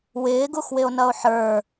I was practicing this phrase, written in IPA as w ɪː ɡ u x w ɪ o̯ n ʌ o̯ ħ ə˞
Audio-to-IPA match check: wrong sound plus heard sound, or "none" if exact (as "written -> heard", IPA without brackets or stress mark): none